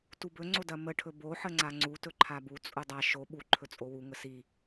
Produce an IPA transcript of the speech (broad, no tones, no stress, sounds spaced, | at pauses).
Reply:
t u b ɵ ŋ͡ǀ o d ɐ m ə ʈʰ ɵ b o ħ ə ŋ͡ǀ a ŋ͡ǀ u t ɵ ǃʰ a b u t͡sʼ u dˤ a ʃ o ɓ u ǃʰ ɵ t͡sʼ o w u ŋ ə s i